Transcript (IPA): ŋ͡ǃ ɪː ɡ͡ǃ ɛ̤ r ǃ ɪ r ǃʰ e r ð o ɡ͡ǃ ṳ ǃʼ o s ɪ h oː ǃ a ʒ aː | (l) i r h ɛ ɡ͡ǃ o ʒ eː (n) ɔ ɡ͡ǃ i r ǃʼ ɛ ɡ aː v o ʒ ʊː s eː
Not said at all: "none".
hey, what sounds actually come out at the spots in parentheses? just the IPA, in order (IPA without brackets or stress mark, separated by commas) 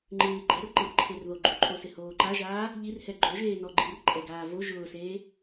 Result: ʎ, n